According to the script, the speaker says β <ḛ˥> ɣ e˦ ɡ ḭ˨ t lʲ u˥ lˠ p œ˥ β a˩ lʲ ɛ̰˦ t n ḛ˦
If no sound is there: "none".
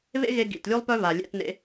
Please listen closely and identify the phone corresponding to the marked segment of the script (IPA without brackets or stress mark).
ḛ˥